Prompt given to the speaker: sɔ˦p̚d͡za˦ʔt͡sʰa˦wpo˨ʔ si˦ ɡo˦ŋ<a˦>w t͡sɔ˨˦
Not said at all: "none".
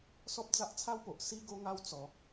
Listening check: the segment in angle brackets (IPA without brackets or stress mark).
a˦